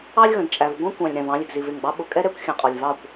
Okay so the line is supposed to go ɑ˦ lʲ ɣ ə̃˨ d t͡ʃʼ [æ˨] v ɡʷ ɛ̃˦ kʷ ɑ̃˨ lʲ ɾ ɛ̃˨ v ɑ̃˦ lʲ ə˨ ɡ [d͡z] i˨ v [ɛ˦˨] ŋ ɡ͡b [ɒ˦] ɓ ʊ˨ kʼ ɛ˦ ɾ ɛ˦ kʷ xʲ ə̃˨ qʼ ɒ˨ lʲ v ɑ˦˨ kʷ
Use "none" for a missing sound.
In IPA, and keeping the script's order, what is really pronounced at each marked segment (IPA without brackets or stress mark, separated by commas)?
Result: æ˨, z, ɪ˦˨, ɑ˦